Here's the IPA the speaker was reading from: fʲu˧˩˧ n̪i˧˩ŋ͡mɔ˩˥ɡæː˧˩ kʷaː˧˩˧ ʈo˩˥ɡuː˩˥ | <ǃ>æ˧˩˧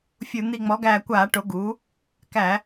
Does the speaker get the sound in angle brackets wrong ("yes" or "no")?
yes